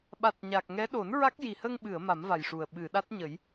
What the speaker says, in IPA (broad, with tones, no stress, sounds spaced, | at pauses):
ɓ a˨˩ t̚ ɲ a˨˩ k̚ ŋ ɛ˧˥ ɗ o˨˩˦ n ɹ a˦˥ k̚ j i˨˩ h ə˧ ŋ ɓ ɨ˨˩˨ ə̯ m a˨˩˦ m v a˨˩ j ʂ u˨˩ ə̯ ɓ ɨ˨˩˨ ɗ a˦˥ t̚ ɲ ə˨˩˦ j